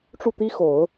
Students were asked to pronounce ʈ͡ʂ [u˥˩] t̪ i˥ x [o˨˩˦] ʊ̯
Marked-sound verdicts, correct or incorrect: correct, correct

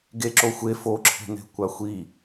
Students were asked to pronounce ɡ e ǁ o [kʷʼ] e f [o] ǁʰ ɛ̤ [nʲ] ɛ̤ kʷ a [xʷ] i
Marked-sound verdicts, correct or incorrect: incorrect, correct, incorrect, correct

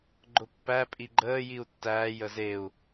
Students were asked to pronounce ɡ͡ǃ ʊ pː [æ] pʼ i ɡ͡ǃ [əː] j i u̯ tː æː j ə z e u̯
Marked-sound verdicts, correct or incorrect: correct, correct

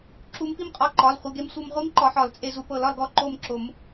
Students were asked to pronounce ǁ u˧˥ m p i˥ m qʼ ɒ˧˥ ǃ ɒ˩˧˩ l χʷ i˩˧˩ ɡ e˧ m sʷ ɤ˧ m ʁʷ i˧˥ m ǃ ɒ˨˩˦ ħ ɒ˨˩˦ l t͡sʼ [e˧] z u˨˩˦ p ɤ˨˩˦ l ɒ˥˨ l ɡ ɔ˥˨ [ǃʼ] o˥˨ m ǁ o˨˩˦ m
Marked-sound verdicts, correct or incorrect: correct, incorrect

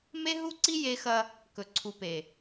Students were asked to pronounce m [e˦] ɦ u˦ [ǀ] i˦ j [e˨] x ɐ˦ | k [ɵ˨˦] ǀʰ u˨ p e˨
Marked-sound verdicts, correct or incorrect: correct, correct, incorrect, incorrect

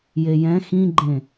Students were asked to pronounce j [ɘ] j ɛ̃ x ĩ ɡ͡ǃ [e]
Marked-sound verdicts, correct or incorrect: incorrect, incorrect

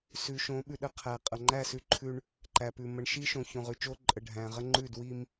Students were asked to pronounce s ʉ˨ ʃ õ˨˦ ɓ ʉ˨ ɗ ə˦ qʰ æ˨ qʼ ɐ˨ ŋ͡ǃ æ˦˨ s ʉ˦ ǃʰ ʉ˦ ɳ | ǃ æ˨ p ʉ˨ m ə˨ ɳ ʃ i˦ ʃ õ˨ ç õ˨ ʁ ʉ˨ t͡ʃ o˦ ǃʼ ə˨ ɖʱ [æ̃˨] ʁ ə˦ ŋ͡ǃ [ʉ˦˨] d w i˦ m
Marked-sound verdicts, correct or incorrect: correct, correct

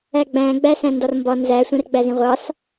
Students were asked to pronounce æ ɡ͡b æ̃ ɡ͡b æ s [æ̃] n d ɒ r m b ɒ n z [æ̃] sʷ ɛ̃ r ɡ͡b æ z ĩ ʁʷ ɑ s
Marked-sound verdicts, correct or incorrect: correct, incorrect

